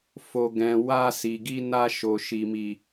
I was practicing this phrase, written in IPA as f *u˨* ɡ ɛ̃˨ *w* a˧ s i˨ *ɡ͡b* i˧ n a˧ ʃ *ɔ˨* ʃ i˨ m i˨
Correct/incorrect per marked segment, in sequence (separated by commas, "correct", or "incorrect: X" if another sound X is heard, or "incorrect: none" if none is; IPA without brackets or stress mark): incorrect: o˨, correct, incorrect: ɡ, incorrect: o˨